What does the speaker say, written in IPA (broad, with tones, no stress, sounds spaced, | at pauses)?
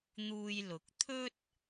n̪ uː˧ j l ʊ˨˥ k̚ t̪ʰ ɵ˥ t̚